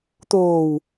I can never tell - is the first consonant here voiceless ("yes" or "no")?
yes